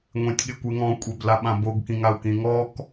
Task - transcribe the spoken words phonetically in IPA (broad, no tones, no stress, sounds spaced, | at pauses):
ŋʷ ẽ tʲ ɠ ɪ kʷ e ŋ ɔ̃ kʷʼ e b l a ɓ ã b o ɡ k ĩ ŋ a u̯ k ĩ ŋ ɔ k